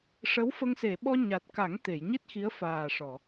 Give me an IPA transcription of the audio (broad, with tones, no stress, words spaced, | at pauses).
ʂə˧˥wfə˧ŋ se˨˩˨ɓɔ˧ ɲa˨˩t̚ka˨˩˦ŋ t̪e˨˩˨jɲi˦˥t̚ xi˧˥ə̯faː˨˩ʂɔ˨˩˨